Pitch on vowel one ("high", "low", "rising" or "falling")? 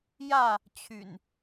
falling